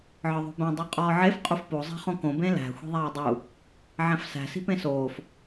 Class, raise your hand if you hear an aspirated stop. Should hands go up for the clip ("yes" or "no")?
no